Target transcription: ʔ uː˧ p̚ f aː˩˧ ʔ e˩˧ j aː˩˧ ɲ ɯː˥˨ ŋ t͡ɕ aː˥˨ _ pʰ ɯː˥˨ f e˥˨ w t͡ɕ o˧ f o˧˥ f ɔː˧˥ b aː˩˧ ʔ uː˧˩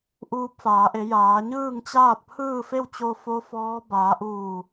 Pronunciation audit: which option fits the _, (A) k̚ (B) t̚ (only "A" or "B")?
B